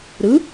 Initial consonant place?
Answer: alveolar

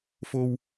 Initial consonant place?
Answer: labial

